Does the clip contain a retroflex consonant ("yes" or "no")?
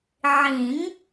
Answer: no